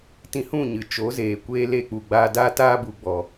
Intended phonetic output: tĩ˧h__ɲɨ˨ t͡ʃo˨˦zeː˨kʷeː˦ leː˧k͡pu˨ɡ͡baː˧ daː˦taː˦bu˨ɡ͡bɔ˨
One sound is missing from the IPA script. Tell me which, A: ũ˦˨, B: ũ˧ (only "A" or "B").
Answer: A